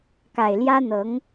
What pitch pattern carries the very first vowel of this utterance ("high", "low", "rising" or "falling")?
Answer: low